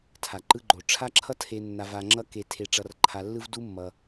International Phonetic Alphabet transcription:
tʰa˩ǃɯ˧ɡ͡ǃo˩ ʈ͡ʂʰa˥ ǁʰʌ˥tʰe˧nːa˧ va˧ŋ͡ǁʌ˥ ke˧tʰe˧ʈ͡ʂʌ˧r ǃʰa˧lːɯ˥v du˥mːʌ˧

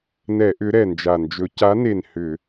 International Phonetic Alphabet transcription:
nɛ˧˩˧ʔʏ˨˦ ɾɛ˨˩nd͡ʒa˨˩nd͡ʒɵ˨˦ ca˨˦ne˨˩n hʏ˧˩˧

